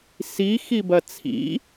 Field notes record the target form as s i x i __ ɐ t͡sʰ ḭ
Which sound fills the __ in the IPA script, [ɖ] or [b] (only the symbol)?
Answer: b